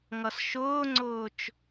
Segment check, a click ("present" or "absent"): present